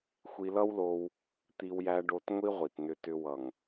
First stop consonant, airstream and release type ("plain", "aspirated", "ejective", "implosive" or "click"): plain